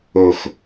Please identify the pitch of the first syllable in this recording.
low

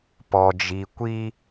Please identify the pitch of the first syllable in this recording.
low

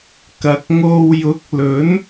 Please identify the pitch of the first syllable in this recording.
low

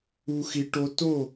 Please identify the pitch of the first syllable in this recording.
low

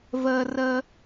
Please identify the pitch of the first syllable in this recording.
high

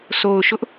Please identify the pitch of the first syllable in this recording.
low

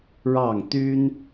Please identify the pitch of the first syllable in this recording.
falling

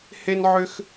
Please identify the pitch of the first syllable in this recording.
high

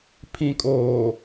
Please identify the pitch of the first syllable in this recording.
low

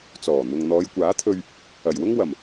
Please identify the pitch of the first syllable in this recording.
low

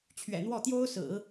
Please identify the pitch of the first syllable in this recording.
low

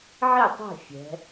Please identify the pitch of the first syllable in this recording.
falling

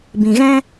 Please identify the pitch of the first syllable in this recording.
low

